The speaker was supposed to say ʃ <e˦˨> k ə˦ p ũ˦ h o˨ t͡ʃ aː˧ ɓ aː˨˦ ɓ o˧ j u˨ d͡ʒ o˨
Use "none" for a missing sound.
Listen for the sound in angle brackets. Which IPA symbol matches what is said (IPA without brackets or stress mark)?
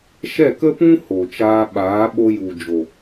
ɛ˦˨